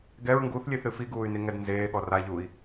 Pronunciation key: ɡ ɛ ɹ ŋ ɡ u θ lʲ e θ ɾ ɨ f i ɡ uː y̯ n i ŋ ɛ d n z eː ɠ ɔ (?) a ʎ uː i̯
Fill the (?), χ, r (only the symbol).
r